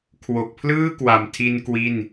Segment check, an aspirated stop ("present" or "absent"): present